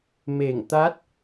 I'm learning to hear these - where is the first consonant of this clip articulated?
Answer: lips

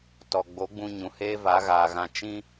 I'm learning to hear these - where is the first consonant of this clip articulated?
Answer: tongue tip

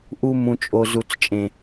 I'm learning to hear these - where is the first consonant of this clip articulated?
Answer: throat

